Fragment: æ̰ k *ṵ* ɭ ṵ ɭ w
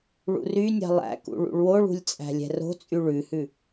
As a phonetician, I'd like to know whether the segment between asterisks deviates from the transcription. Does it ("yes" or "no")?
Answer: no